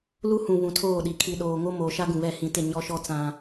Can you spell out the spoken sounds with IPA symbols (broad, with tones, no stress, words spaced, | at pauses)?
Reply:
lu˦hũ˨ βũ˨tʰoː˦˨ɗi˨ kʰi˨ɗoː˨ŋo˦ moː˨ʃa˦ ɡũ˨βɛ˦˨ hĩ˦ tɪ˦˨ ɲɔ˦ʃɔ˦ t͡sã˦